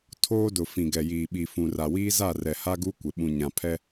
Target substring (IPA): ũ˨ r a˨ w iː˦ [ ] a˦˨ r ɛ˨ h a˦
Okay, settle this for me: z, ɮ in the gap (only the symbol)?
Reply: z